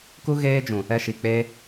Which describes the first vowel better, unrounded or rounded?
rounded